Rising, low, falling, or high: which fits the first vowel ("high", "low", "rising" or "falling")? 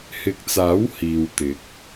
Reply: rising